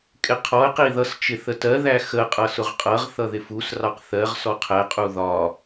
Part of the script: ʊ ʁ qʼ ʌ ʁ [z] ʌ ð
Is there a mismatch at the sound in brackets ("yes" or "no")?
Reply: yes